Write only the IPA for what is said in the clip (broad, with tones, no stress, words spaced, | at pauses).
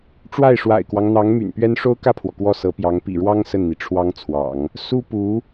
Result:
ʈ͡ʂwa˥˩ɪ̯ʂwa̰˨˩ɪ̯kwɑ˦ŋ n̪ɑ˧˥ŋ my̰˨˩npɥɛ˥n ʂo˥ʊ̯kä˥˩pʰwɔ˩ kwɔ˥˩sɤ˧˥pjɑ˧˥ŋ pḭ˨˩ɻwɑ˥ŋ sə˥˩nn̪i˩ʈ͡ʂʰwɑ˥ŋt͡sʰwɑ̰˨˩˦ŋ | su˥pu˧˥